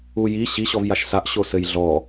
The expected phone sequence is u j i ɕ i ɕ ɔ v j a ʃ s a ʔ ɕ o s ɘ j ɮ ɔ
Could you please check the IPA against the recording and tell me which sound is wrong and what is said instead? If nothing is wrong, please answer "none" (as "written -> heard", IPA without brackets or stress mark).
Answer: none